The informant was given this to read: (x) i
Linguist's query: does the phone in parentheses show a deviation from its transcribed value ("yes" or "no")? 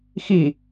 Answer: no